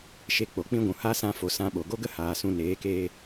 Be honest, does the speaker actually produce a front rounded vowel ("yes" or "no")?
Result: no